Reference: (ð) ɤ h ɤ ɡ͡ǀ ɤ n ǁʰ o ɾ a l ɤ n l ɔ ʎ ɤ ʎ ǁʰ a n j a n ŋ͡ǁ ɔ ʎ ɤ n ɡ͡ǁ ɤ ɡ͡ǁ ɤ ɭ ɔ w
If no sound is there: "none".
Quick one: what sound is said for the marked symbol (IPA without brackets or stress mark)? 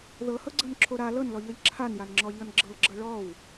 ð